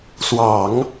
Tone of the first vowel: low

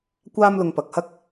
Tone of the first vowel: high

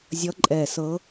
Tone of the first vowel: rising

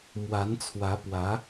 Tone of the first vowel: rising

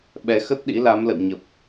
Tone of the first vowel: rising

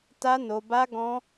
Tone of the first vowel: high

